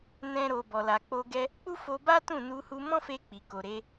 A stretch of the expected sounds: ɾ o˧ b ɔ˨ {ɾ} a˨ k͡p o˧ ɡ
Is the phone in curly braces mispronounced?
yes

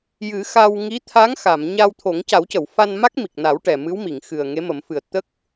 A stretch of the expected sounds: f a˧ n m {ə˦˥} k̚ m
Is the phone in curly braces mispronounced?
yes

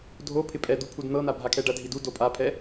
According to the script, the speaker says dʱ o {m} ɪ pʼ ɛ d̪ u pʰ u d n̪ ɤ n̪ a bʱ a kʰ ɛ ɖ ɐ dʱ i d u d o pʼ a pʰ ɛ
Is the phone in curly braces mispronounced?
yes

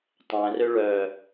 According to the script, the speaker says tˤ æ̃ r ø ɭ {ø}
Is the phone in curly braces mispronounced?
yes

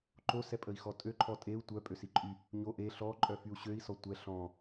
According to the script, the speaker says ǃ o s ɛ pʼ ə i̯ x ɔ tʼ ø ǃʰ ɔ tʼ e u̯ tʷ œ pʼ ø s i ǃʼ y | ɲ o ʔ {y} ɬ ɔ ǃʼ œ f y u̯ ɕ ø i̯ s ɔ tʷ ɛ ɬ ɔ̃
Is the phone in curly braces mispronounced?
yes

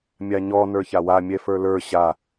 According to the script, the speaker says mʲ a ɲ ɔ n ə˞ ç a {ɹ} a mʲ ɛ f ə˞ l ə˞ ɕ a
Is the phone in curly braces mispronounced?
yes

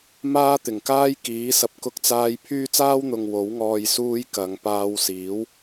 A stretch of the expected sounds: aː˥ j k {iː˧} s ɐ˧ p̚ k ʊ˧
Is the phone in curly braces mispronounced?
yes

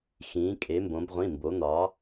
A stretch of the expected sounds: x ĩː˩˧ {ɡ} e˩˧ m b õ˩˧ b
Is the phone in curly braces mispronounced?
yes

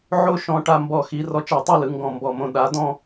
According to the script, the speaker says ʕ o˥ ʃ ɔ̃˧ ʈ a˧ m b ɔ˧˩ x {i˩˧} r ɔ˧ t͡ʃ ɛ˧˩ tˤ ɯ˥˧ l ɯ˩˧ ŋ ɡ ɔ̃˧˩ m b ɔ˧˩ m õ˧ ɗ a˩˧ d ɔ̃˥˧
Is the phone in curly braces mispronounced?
no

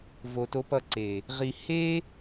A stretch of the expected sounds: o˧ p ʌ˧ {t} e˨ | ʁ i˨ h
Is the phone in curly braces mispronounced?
yes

